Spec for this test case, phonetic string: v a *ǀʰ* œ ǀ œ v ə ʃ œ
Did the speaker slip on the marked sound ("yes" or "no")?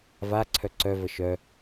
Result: no